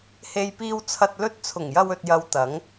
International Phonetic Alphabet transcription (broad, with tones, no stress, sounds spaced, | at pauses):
h e˧ j p iː˧ w t͡sʰ ɐ˧ t̚ l ɵ˧ t̚ t͡sʰ ʊ˨˩ ŋ j ɐ˧ w ɵ˨ t̚ j ɐ˨˧ w t̪ ɐ˨˥ ŋ